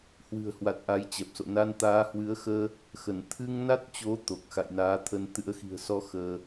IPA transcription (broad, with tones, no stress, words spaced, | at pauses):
hwɨ̤˨˩ə̯hwa˨˩t̚ ʔa˨˦jt͡ɕɛ˨˩p̚so̰˧˨ na˧nt̪aː˨˦hwɨ˨˦ə̯xəː˧ | xə˧˩n t̪ʰɨ˧ŋna˦˥t̚t͡ɕo˨˦ t̪o˨˩k̚ xa̰˧˨jnaː˨˦ t̪ʰə˧n t̪ɨ̰˧˥ə̯ xi̤˨˩ə̯sɔ˨˦ xəː˧